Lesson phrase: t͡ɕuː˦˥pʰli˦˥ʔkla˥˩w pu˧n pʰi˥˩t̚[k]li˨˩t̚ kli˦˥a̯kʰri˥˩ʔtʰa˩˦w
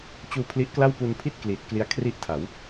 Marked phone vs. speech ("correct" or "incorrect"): correct